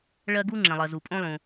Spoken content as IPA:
ɭ ɜ˥ ɡ u˥ ŋ͡ǁ ɛ̃˩ lˠ ɜ˩ z u˩ pʼ õ˥ lˠ ũ˩

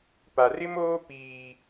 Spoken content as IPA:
p a˨ r ɪ˦ m oː˦ p iː˦

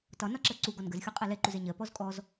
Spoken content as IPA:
t ɒ n ɒ ǁ ɜ ǀ u ɡ ɔ n ɡ ə z xʲ u qʼ ɜ l ɛ ǃ u z ɛ ɲ ɜ p ɔ z kʼ ɔ z

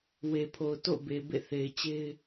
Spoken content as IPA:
w e˨ pʰ o˨ ʊ̯ t o̰˦˨ ʊ̯ b e˨ b ḛ˦˨ θ e˨ ɪ̯ t͡ɕ e˦ ɪ̯

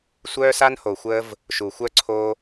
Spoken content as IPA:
sʷ œː˧ s a˧ n h o˨ xʷ əː˧ v | ʃ u˨ xʷ œ˧ ǀʰ o˧

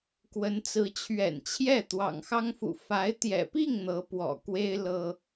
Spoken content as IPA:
k w ə˧˥ n t͡s ɹ̩˧˥ t͡ɕʰ ɥ ɛ̰˨˩ n t͡ɕʰ j ɛ˥˩ t̪ w ɑ̰˨˩ ŋ x ɑ˥ ŋ f ṵ˨˩ f a˧˥ ɪ̯ t̪ j ɛ̰˨˩ p i˥˩ ŋ n̪ ɤ˧˥ p w ɔ̰˨˩ k w e˥ ɪ̯ l ɤ˥

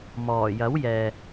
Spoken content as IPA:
m ɔː˨˩ j ɐ˨˥ w j ɛː˨

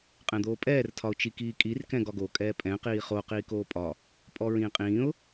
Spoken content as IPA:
qʼ ɛ̃ d̪ oː pʼ ɛː r tʰ ɒ ʊ̯ t͡ʃ i k iː kʼ i r k ɛ̃ ɡ ɒ ɡ o kʼ ɛː pʼ ɛ̃ q iː χ o q iː k oː pʼ ɒ | pʼ ɔ ɹ ĩː qʼ ĩː ʊ̯

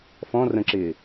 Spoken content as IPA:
f ɔ̃ r ə̃ ǁ ɪː

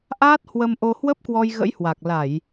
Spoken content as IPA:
ʔ aː˦˥ t̚ h w ə˧ m ʔ o˧ h w ə˦˥ p̚ k w ɔ˧ j ɣ ə̰˧˥ j h w a˨˩ k̚ l a˧˩˨ j

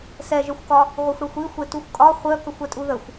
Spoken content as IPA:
s ɛ ʒ œ xʷ k ɒ | ʁʷ œ xʷ ɽ ɛ xʷ i xʷ e t u xʷ kʼ ɒ χʷ œ k ə xʷ ɛ tʼ u ð ə xʷ

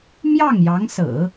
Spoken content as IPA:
m j ɑ˥˩ ŋ j ɑ˧˥ ŋ s ɹ̩˨˩˦

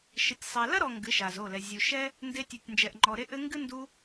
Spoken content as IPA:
ʃ ɘ˨ tʲ sˤ ɛ˨ l ɐ˦ ɾ ɔ˨ ŋ ɡ ɨ˨˦ ʃ a˨ z o˦˨ l ɛ˨ zʲ u˨ ʃ ɛ˦ | n d e˧ tʲ u˨ tʲ n d͡ʒ ɛ˨ ʔ ŋ͡ǃ ɔ˨ ɾ e˧ ʔ ɘ˧ ŋ ɡ ɨ˦ n d u˧

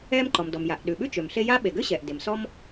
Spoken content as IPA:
ɛː˥ m ǃ ɔ˩ m d ɔ˩ m j a˩ ʔ ɗ ʉ˩ ɓ ʉ˥ t͡ʃ ø˩ m ɬ e˥ j a˥ ɓ e˩ ɡ ø˥ ɕ ɛː˩ ʔ d e˩ m s ɔ˥ m

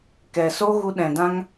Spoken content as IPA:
k ɛ˨ s o˦ ɣ u˧ ɗ ɛ̃˨ d ã˦ ŋ

